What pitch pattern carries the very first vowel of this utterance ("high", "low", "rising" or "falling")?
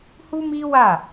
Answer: high